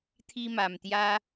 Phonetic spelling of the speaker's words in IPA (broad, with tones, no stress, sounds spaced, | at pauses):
t̪ʰ i˧ m a˨˩ m t̪ j a˧